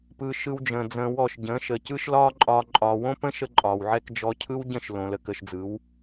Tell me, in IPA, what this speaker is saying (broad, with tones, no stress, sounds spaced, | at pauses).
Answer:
p ɯ˧ ʃ ɯ˧ w d͡ʒ ə̃ː˨ d͡z ə̃ː˧ w ɔ˦˨ ʃ ɟ ə̃ː˨˦ ʃ ə˨ c ɯ˦ ʃ l ɒː˦ ǃʼ ɒː˧ ǃʼ ɒː˨ w õ˦ p ə̃˦ ʃ ə˦ ǃʼ ɒː˨ w ʕ ɛ˦ k d͡ʒ ɔ˧ cʰ ɯ˦ w ɟ ə̃˦˨ ʃ l õ˨ l ə˧ k ə˧ ʃ d͡z ɯ˨˦ w